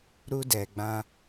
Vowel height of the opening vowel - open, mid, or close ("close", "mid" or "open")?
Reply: close